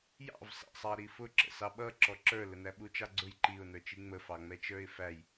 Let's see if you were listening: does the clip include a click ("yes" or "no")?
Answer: yes